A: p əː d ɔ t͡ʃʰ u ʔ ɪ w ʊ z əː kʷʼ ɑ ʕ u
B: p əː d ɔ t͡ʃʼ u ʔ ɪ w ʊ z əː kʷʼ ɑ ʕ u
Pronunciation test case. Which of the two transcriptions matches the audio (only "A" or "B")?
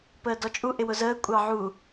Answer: B